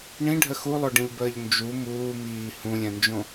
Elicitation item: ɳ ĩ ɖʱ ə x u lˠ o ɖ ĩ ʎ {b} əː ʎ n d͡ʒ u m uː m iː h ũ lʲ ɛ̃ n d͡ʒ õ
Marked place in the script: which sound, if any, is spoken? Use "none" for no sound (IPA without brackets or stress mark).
b